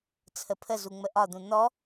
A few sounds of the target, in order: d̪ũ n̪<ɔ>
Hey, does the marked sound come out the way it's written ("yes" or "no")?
yes